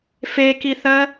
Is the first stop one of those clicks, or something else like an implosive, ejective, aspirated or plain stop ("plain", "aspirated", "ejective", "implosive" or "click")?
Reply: plain